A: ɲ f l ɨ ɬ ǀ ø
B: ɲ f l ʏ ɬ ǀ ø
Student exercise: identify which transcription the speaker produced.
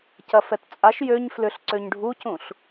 B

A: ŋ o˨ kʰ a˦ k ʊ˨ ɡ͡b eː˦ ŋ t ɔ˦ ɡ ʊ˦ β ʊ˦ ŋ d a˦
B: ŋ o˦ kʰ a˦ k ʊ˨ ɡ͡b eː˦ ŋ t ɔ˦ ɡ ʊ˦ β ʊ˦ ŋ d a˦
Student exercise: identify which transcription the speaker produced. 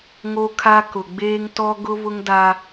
B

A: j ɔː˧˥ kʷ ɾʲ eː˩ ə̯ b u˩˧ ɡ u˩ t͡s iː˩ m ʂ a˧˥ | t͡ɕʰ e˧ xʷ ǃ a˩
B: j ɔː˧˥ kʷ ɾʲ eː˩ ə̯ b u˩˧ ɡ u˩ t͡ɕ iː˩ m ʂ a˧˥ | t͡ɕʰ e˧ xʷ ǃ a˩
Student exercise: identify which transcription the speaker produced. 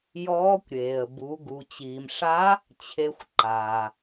B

